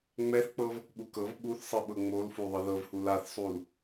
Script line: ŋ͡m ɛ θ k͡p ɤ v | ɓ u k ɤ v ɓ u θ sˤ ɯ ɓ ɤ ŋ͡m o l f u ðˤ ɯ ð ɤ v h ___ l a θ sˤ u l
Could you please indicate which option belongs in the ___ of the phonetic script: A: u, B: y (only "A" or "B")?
A